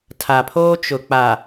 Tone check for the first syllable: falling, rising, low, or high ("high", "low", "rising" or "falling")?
low